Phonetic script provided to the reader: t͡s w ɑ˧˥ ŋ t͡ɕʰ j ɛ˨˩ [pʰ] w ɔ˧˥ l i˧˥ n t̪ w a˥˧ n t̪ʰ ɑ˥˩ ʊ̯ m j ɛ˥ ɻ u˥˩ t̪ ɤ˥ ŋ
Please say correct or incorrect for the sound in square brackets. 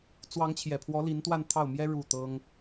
correct